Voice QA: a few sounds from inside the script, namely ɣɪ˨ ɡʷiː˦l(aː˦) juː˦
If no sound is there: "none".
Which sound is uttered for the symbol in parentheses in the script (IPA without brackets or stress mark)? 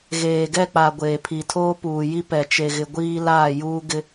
aː˦˨